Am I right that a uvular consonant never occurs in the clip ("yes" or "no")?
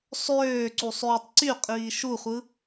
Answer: no